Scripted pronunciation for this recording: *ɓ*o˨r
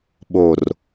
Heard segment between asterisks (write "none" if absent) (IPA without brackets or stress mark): ɓ